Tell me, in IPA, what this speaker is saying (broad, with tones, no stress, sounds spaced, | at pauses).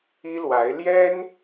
i˥ l w a˧˥ ɪ̯ l j ɛ˥ n